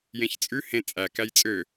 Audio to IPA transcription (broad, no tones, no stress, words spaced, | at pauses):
jẽçt͡sʼʉ hẽ t͡sʼæ kæjt͡sʼø